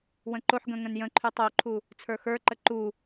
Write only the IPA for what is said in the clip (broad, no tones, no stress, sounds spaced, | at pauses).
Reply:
w ə̃ ǃ o ħ ɡ ə̃ ŋ ə̃ n j ə̃ ǃʰ y tˤ o ǃʰ u | t͡sʰ ə˞ x ə˞ ǃ ə ǃ u